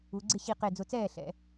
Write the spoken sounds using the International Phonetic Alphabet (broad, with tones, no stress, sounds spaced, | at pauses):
u˩˧ ɡ͡ǀ ɪ˥˩ ɕ i˧˩ q e˧˩ d͡z ʊ˧˩ t͡s ɛː˥˩ ɬ ɛ̰˨˥